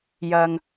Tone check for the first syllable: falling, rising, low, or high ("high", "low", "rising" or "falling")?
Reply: low